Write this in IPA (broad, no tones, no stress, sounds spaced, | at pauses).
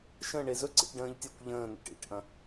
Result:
ʃ ə̃ ɳ e z ɵ ǀ ḭ ʈ ɖ ə̃ː ʎ tʲ ɐ kʷ ʎ ə̃ː n̪ ə̰ ʈ ḭ ʈ ʔ ɐ̃